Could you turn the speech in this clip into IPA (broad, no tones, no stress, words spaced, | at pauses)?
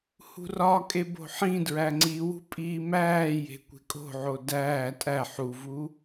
hṳrɒkʼe bo̤ħĩdɹæ ŋ͡ǀiwṳ pʼiːmæːje̤ kʷe̤kʼo̤ʕo dæː tʼæ ħuvu